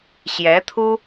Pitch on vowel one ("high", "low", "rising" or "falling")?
rising